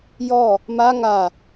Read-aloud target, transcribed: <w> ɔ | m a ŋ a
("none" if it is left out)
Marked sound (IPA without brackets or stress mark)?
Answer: j